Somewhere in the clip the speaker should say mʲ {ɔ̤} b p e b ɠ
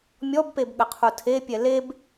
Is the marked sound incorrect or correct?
incorrect